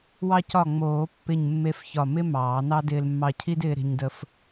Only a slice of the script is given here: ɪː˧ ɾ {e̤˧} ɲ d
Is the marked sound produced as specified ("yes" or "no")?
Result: yes